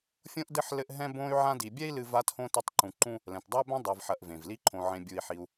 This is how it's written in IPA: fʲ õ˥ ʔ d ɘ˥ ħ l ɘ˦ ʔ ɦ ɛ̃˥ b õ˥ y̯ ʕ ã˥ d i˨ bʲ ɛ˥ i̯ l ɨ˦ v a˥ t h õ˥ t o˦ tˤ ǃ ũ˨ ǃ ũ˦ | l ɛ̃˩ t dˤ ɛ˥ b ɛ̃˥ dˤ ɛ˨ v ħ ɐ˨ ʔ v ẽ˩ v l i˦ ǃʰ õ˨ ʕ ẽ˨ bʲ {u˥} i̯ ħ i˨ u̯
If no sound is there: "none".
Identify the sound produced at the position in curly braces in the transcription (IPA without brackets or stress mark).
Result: u˨